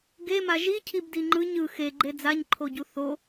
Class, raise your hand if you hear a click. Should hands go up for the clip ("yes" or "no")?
yes